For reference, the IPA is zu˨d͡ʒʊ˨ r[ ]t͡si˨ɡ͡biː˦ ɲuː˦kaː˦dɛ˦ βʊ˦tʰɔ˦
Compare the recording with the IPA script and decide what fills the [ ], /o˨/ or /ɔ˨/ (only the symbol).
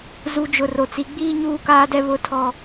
o˨